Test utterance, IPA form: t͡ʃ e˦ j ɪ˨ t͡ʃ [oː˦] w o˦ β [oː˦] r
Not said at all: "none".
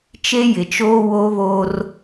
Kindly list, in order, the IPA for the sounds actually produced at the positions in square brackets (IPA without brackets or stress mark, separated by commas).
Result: oː˦, oː˦